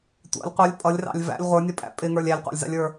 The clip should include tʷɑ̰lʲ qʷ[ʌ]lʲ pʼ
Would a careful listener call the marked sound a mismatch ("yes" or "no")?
no